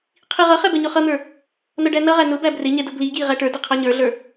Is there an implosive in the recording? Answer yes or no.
no